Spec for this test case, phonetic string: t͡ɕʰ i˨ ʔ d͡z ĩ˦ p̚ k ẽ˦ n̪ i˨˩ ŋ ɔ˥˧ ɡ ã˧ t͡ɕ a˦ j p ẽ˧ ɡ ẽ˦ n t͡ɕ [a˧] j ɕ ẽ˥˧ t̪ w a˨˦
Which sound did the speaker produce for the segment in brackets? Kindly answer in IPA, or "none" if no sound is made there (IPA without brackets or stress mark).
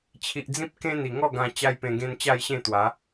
a˥˧